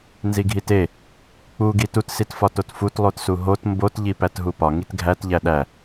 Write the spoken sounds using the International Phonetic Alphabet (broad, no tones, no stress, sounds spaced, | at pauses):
n z i ɡʱ i t e | k͡p u ɡ i t u t s i t f ɒ t o t f u t lˠ o t s u ɦ o t m b o t ʎ i p æ t ɦ u p ɒ ŋ i t ɡʱ æ t ʎ æ ɗ æ